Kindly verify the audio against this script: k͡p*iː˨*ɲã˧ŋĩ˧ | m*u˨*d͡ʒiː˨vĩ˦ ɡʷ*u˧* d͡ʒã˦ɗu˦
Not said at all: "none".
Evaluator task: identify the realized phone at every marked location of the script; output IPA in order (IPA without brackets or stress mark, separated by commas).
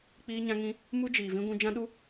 iː˧, u˦, ũ˧